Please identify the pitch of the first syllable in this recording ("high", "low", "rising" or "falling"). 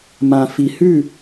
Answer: low